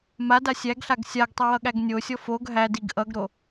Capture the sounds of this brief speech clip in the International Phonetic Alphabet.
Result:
m a d a sʲ æ ɡ ɬ a ɡ sʲ a ɡ tˤ ʌ w ʌ ɠ æ ɡ nʲ o sʲ ɔ f o ɡ ɦ æ d i ɡ ʔ ʌ ɡ ɾ o

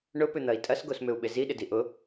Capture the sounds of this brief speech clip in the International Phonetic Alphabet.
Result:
ɳ ʊ p ʏ n̪ ɐ i̯ tʼ ɐ s ɡ o s m ʏ u̯ ɓ ɪ z i ɗ ɪ d i ʔ ʊ

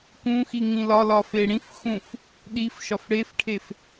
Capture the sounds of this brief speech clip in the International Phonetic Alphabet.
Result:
k ũ x i ŋ ĩ l ɒ l ɒ f e ɽ ĩ f x ũ f | ɗ i f ʃ ɒ f ɽ e f ʈʰ e f

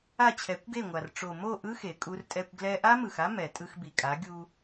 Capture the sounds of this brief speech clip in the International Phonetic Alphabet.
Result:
a˦˨ t͡ɕʰ ɛ˨˦ kʷ ɡ e˦˨ ŋʷ a˨ r ʈ͡ʂ o˨ m o˦˨ ʔ ɯ˦ x e˨ kʼ u˧ r tʼ ɛ˧ kʷ ɡ l ɛ˧ ʔ a˦ m ɯ˨ x a˦ m ɛ˨ tʼ ɯ˧ x b i˨ kʼ a˨˦ ɡʲ u˧

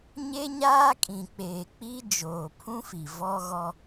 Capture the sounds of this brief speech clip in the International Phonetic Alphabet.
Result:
ɲ e˦ ɲ aː˦ kʼ ĩ˨ k͡p eː˨ k͡p i˦ d͡ʒ oː˨ pʰ ũ˦ f i˨ v ɔ˦ ɣ ɔ˦

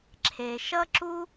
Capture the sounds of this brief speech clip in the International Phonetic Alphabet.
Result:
ǁʰ e˨ ʃ ʌ˥ ǁ u˥

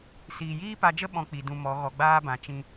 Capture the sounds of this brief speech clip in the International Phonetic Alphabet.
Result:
s iː˨ j iː˦ p a˧ d͡ʒ ə˦ ɓ ɔ̃˦ k͡p i˨ d ũ˧ m ɔ˨˦ ɣ ɔ˨ ɡ͡b aː˦ b ã˨ t͡ʃ ĩ˦

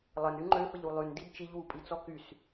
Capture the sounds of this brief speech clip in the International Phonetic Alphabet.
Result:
lˠ ə n y ŋ͡ǃ ø f ə ʎ u lˠ y n d i d t͡ʃ i ʎ w u pʼ i t͡s ɔ k y s

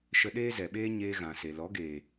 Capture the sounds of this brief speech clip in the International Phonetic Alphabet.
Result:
ʃ ə˧ ɗ eː˦ z ɛ˨ ɓ eː˦ ɲ eː˧ ɣ ã˨ s e˨ l ɔ˨˦ ɡ eː˨

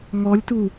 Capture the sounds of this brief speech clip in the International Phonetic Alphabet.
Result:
ŋ ɔ lʲ t u

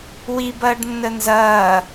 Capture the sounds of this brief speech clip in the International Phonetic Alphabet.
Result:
w i b ɐː ɖ nː ə n z ɐː

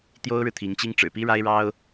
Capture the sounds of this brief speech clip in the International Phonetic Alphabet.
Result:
t̪ j o˥ ʊ̯ ɻ ɻ̩˨ t̪ʰ i˧˥ ŋ t͡ɕ i˥ ŋ ʈ͡ʂ ɻ̩˨˩ p i˥ ɻ a˥ ɪ̯ ɻ ɑ˥ ʊ̯

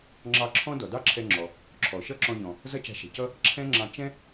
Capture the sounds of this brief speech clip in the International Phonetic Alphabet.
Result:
ŋ͡ǁ ɑ˧ ǁʰ ɔ̃˥ d ɔ˩ d ɑ˥ ǁʰ ɛ˧ ŋ͡ǁ ɔ˩ | ǁʰ ɔ˩ ʃ ʌ˥ ǁ ɔ̃˧ ʎ ɔ̃˩ | z ʌ˥ t͡ʃ a̤˧ ʃ ɛ̤˩ c ʌ˥ | ǁʰ ɛ̃˥ ŋ͡ǁ ɑ̃˧ t͡ʃ ɛ̃˥

